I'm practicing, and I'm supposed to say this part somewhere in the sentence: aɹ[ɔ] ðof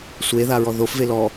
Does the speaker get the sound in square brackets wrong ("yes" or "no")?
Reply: no